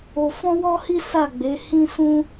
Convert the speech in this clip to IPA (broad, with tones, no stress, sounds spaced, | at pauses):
o˧ f ɔ̃˦ w ɔ˦ h i˦ s a˦˨ ɡ͡b e˨˦ h ĩ˦ s ũ˦